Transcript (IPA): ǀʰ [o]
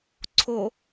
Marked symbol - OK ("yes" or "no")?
yes